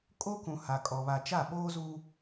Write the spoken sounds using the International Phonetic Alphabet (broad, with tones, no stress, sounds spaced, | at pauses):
kʼ o˦ k ũ˨ h a˨ kʼ ɔ˨ β a˨ t͡ʃ a˦˨ ɓ oː˦ z u˦